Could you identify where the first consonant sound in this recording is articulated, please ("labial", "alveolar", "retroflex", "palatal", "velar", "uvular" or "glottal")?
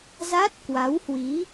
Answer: alveolar